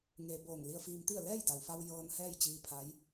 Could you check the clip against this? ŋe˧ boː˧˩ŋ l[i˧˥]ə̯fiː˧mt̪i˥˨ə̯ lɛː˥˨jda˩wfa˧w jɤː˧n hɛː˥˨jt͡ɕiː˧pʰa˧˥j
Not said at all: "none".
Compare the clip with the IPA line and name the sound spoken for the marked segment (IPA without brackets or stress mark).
i˧